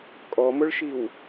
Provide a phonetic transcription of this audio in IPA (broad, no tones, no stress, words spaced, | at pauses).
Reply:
kʼɔmʊɭʃiw